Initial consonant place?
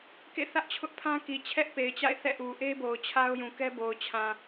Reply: velar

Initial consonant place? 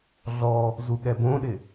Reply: alveolar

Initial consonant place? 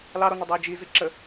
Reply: alveolar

